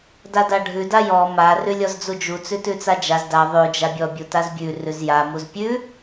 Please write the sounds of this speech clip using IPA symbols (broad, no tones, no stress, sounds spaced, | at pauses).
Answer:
d a d a ɖʱ ʉ d a j ɔ m a r ʉ lʲ ɔ z d͡z u d͡ʒ u t͡s ʉ t ʉ t͡s a d͡ʒ a z d a ðˤ ʉ d͡ʒ a bʲ ɔ bʲ u t a z bʲ ʉ r ʉ z j a m u z pʲ ʉ